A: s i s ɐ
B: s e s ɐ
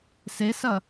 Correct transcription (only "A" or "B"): B